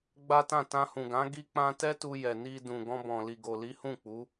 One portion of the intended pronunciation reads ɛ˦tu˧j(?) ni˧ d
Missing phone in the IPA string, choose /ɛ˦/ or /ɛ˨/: ɛ˨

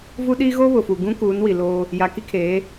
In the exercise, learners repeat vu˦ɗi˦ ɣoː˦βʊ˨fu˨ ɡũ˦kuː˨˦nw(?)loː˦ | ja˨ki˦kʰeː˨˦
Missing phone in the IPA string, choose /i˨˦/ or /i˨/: i˨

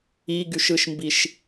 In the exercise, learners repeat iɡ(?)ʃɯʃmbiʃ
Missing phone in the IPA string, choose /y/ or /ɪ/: y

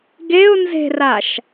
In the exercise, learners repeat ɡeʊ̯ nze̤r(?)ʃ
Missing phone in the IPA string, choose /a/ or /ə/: a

